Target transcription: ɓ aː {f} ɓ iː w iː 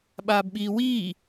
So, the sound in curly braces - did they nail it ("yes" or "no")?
no